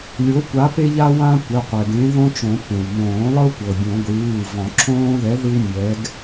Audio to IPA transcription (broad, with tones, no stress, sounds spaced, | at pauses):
lʲ o˨˥ kʷ a˨˥ p e˦ ʎ a˦ w ã˦ kʷ ɛ˩˧˩ qʷ ɛ˩ ɡ ẽ˨˥ ð õ˦ t͡ʃ õ˨˩˦ p ẽ˩ w m õː˨˩˦ lˠ ɤ˦ kʷ ɤ˩ bʲ õ˨˩˦ ɡʷ ɯː˩˧˩ v ɔ̃˨˩˦ ǁʰ õː˦ ð ɛ˨˥ ð ɯ˦ w mʲ ɛ˨˥ ɡ